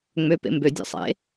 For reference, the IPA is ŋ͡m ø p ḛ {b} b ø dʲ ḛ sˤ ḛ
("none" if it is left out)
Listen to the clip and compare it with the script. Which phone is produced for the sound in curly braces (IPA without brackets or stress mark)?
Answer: m